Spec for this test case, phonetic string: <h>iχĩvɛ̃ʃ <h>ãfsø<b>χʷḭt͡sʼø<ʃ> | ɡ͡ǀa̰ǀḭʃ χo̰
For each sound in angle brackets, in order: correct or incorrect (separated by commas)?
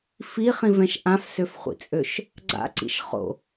incorrect, incorrect, incorrect, correct